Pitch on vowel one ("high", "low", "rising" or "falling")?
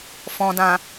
low